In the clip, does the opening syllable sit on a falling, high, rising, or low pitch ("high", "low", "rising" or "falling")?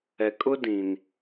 low